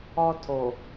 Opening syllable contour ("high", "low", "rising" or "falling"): high